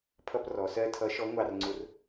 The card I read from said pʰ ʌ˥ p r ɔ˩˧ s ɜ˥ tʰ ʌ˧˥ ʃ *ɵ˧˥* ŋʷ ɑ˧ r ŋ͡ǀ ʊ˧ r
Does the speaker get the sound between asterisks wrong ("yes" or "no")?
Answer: yes